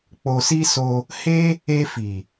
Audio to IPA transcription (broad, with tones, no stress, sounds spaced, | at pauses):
k͡p o˧ s i˦ s o˧ | h e˦ | e˧ f i˨